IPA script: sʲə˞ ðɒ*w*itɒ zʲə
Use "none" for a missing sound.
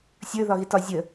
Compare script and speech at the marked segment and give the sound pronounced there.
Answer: ɣ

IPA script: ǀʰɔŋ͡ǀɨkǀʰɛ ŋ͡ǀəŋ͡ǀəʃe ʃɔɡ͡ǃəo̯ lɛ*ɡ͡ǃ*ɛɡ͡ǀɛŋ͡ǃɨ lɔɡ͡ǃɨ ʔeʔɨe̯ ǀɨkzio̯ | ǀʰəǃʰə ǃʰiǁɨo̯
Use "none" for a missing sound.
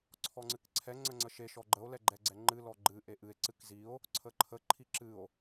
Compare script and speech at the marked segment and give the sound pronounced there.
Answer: ɡ͡ǃ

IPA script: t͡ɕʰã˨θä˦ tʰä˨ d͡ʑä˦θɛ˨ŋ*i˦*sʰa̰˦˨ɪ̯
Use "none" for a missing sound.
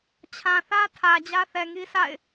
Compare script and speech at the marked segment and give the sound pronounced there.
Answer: i˦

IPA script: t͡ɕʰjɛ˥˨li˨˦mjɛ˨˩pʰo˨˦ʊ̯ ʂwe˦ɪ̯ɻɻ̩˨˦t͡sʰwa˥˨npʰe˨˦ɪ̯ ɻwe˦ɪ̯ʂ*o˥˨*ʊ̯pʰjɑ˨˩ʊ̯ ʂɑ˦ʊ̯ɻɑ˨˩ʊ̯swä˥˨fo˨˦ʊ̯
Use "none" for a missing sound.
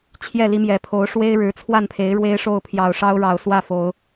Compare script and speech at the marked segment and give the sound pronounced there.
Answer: o˥˨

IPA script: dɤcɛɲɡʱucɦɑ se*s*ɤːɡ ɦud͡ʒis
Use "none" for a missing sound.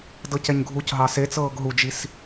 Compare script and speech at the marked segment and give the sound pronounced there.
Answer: t͡s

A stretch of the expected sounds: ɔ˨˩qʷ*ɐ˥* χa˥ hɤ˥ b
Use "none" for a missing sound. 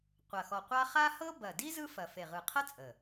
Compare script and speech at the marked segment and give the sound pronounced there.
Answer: a˥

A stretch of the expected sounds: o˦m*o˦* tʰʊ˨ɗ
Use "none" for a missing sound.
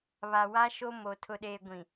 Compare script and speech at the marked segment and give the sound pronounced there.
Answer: o˨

